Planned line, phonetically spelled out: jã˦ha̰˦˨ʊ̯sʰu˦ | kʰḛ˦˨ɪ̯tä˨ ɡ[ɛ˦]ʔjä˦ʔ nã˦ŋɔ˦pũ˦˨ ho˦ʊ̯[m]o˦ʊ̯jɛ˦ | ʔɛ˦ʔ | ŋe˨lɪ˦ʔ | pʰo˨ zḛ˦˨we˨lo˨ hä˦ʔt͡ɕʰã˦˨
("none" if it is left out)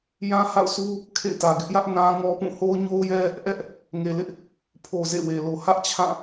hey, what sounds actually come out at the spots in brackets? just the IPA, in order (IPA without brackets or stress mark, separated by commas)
ɪ˦, ɲ